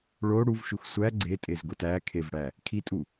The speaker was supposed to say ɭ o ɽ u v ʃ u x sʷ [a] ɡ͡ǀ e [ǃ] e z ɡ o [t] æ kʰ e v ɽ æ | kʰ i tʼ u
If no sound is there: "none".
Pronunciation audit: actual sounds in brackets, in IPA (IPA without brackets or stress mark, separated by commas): æ, tʼ, t